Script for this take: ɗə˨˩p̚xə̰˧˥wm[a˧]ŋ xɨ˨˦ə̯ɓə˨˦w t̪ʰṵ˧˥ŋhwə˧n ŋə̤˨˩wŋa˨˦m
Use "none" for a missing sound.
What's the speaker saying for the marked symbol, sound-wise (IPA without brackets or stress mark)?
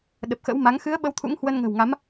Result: a˨˦